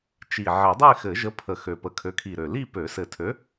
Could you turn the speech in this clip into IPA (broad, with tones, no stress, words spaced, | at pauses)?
t͡ʃi˨˩ ʕe˨˩˦dˤe˥˧xɘ˨˩˦ ʒə˨˥ pʰə˨˩ xø˨˩pə˨˩kʰø˨˥ kʰi˨˩ɾø˨˩li˥˧ pø˨˩˦sɘ˨˩tʰø˨˥